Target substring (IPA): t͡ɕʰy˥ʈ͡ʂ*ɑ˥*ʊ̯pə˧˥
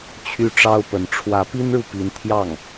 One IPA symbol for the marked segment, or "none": ɑ˥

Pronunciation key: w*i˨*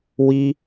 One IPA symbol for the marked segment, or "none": i˦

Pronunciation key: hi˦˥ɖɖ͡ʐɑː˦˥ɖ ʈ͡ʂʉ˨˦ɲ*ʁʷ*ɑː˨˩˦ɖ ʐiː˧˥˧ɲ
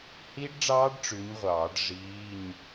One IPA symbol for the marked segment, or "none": ʁʷ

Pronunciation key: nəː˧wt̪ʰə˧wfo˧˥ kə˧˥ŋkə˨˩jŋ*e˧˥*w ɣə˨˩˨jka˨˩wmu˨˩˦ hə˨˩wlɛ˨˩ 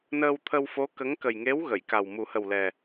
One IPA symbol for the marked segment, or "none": e˧˥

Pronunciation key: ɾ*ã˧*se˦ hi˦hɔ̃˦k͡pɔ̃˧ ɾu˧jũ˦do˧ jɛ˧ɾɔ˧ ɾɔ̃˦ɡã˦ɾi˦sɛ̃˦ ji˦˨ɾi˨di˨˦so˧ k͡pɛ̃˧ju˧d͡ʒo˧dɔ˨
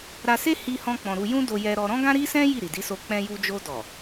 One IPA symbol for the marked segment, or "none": a˧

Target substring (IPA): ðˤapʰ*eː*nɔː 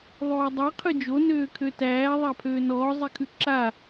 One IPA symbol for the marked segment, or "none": øː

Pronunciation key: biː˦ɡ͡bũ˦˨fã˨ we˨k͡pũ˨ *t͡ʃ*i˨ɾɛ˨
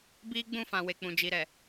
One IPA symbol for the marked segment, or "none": d͡ʒ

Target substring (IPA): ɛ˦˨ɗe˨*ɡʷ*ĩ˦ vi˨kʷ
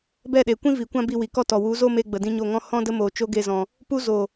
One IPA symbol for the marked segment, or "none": kʷ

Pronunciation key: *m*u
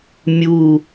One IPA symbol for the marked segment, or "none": mʲ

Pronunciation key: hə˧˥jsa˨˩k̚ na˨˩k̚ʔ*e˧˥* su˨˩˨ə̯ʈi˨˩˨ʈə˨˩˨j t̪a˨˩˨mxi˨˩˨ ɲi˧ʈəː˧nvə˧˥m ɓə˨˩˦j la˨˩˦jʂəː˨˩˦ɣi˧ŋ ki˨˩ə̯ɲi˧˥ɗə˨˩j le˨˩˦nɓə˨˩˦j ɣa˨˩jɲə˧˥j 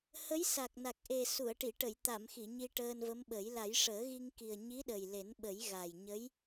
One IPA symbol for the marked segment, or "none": e˨˩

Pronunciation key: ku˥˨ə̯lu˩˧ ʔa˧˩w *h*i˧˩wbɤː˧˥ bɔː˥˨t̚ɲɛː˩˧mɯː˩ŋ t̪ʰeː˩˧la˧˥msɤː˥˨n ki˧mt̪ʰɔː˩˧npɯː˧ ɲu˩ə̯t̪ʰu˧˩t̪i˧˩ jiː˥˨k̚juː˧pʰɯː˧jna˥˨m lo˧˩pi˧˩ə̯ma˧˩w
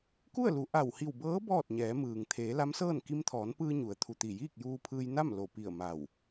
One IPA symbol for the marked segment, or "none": h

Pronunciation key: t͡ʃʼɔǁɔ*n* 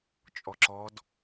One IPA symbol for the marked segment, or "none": d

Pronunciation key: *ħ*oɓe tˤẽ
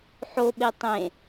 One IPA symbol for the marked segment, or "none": ħ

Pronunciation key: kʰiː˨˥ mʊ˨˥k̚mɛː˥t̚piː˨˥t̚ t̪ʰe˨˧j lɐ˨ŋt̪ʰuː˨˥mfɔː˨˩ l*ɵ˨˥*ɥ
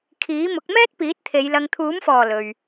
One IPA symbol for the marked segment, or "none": ɵ˨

